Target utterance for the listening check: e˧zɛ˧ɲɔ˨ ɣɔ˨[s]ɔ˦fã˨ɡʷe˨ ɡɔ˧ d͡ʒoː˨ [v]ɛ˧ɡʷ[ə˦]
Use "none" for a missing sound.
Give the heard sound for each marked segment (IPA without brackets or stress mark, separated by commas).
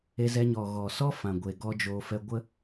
s, f, ə˦